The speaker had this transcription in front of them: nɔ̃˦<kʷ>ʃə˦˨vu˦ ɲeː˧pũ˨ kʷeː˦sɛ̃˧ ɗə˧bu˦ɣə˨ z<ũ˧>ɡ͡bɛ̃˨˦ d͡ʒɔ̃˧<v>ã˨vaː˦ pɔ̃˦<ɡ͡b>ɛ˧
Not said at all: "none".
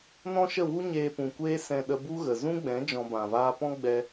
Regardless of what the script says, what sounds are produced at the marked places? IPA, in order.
none, ũ˦, b, ɡ͡b

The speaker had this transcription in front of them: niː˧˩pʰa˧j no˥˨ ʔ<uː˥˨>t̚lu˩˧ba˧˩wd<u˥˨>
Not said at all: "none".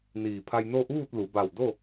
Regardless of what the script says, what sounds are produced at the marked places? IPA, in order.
uː˥˨, o˥˨

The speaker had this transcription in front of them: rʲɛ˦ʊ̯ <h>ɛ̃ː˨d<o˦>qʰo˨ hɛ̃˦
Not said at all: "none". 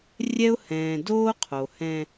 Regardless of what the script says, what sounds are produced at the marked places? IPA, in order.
h, oː˦

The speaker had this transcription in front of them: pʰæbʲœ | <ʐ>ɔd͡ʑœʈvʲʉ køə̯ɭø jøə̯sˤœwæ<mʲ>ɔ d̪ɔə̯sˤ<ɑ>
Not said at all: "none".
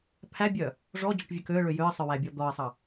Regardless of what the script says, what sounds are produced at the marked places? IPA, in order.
ʐ, bʲ, ɑ

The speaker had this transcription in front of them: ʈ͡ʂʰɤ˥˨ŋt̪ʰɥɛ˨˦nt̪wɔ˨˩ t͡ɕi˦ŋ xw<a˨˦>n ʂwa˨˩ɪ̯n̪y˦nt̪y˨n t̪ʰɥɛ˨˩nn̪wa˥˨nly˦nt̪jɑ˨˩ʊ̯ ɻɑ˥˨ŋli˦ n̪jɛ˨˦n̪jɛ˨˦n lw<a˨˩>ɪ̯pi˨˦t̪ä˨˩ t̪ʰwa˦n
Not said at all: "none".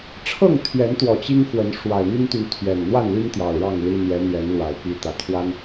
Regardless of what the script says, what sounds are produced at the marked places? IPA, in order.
ə˨˦, a˨˩

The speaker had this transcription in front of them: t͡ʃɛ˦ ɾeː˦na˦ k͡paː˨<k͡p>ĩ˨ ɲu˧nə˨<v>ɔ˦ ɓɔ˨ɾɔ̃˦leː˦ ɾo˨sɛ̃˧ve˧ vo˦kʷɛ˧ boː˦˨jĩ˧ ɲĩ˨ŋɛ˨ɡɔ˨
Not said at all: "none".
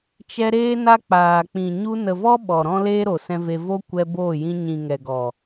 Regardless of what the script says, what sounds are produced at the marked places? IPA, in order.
k͡p, v

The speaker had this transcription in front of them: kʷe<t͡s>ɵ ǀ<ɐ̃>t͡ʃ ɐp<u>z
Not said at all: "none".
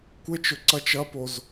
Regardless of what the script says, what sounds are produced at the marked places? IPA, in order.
t͡ʃ, ɐ, o

